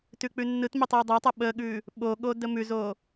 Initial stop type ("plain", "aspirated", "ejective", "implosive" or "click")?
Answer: plain